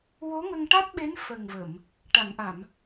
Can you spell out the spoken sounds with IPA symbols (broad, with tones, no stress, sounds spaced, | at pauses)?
w o˧˥ ŋ ə˧ ŋ ʈ a˦˥ t̚ ɓ e˧˥ n f ə˨˩ ŋ v ə˨˩˨ m | ʈ a˨˩˨ ŋ ʔ a˨˩˨ m